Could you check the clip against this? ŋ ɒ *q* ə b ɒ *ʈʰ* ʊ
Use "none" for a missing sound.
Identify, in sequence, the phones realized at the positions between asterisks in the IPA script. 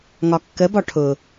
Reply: kː, ʈʰ

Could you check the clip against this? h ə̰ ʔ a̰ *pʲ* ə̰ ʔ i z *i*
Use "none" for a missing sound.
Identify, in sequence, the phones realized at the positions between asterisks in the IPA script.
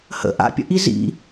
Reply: pʲ, ḭ

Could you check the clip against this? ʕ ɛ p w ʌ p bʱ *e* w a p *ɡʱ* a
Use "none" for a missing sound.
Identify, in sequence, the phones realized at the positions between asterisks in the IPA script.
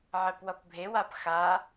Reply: e, x

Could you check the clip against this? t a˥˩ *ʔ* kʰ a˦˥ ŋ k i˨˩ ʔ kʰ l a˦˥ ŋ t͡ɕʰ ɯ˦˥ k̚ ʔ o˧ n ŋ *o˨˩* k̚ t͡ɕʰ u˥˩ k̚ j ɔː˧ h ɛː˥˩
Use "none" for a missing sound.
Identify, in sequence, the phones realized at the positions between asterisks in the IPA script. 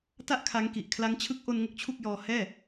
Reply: ʔ, o˦˥

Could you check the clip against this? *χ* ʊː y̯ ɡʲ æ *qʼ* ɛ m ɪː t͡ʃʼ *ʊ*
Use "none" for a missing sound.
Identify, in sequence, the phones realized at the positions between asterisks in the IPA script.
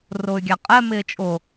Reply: r, qʼ, ʊ

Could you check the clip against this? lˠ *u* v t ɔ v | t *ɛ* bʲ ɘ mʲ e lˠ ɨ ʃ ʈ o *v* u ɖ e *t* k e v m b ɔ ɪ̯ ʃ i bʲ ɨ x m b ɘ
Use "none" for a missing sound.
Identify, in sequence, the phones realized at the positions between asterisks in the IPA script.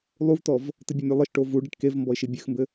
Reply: u, ɨ, v, ʈ

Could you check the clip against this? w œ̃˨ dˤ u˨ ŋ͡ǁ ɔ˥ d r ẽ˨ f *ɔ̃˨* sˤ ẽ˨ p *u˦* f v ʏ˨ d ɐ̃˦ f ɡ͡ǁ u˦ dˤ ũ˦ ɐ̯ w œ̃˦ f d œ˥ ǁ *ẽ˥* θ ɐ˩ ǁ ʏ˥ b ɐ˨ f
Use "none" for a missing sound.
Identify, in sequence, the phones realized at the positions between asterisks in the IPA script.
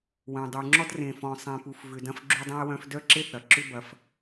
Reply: ɔ̃˨, u˨, e˥

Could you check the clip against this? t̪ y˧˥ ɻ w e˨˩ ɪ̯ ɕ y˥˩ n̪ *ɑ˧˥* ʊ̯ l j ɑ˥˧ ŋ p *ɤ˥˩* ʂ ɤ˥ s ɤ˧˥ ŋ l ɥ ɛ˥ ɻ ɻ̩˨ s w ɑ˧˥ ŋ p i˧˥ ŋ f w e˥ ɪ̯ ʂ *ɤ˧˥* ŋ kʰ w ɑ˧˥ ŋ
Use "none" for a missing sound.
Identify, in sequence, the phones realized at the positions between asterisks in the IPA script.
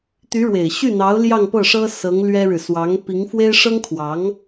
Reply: ɑ˧˥, ɤ˥˩, ɤ˥

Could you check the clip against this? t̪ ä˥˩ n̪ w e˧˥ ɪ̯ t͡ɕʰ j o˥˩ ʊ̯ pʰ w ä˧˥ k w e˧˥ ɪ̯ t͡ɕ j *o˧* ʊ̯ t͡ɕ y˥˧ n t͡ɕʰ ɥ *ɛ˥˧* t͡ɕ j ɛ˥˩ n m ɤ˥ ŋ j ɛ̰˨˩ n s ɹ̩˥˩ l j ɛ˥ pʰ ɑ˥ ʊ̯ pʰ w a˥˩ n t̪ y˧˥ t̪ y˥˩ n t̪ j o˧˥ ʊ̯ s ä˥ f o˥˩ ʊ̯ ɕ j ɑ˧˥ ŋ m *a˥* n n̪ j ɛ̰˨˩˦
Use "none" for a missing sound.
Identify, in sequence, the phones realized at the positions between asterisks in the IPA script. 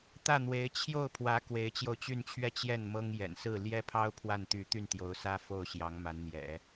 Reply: o˧, ɛ˥˧, a˧˥

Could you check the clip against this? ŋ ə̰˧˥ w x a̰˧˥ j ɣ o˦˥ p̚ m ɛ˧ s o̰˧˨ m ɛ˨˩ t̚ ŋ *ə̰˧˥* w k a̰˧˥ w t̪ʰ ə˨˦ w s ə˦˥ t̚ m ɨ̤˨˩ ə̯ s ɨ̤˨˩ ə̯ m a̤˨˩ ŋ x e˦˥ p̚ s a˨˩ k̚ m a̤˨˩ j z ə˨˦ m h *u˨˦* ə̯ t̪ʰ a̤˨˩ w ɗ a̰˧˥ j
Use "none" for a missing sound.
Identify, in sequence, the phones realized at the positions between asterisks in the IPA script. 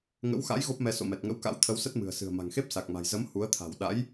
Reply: ə̰˧˥, u˨˦

